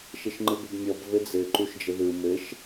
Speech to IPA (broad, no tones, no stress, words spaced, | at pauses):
ʃɘʃŋ͡ǃɯbɘbmʲɔb vɘd͡zɘ ǃuʃd͡ʒəðɯ mɘʃ